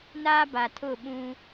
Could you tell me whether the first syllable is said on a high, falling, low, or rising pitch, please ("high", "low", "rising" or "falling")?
high